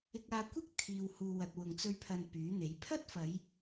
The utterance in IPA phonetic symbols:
ɪ˧k̚aː˧kʷɪ˥k̚ t̪ʰiː˧whuː˧ wɐ˨t̚wʊ˨ŋt͡sɵ˧ɥpʰɐ˨n pyː˨˥n̪e˨˥j pʰɐ˥t̚fɐ˨˧j

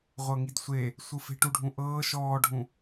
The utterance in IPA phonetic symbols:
ʁʷɤŋidsʷe | sʷɯfe̤ ʈuɖʱũʔɤː ʃɔːɖʱũ

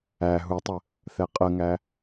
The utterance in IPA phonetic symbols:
æ ɦutˤə | θɛqʼəŋæ

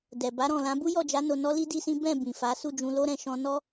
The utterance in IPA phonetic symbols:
dɛ˨ba˨˦ɾɔ̃˦˨lã˨˦ bu˦jɔ˦˨d͡ʒa˨˦ no˧nɔ˦li˦ di˦sĩ˦ bɛ̃˦˨ bĩ˨fa˨˦ su˦˨d͡ʒũ˧lo˦ɾɛ̃˧ ʃɔ̃˧nɔ˦

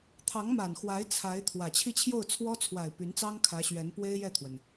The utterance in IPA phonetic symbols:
t̪ʰɑ˧˥ŋma˨˩nxwa˧˥ɪ̯ t͡sʰa˧˥ɪ̯t̪ʰwä˨˩ t͡ɕʰi˥˧t͡ɕʰjo˥˩ʊ̯t͡sʰwɔ˥ t͡sʰwa˨˩ɪ̯ py˧˥nt͡sɑ˥ŋ kʰä˧˥ɕɥɛ˧˥npwe˥ɪ̯ jɛ˥˩t̪ʰwə˩n

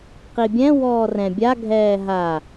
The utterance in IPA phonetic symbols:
qibʲɛ̃ wɔːrɛ̃ bʲa ɡʱɛːɦa

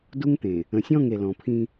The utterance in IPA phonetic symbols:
du˦ŋt̪ẽ˨ | ə̃˨sʲɔ̃˦˨ŋ e˨lɔ̃˨pʰĩ˦

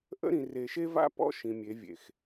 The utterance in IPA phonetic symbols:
ʔə̰˦ɾĩ˨ re˨ʃe˦va̰˦ pɔ̰˦ ʃĩ˨mʲe˨˦vʲḛ˨x

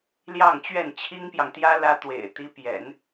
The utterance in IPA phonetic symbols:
ljɑ˥˧ŋt͡ɕɥɛ˥˩n t͡ɕʰi˥ŋpjɑ˨ŋt̪jä˥ lä˥t̪wḛ˨˩ɪ̯ t̪i˧˥pjɛ̰˨˩˦n

